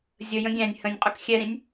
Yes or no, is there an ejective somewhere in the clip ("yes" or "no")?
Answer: yes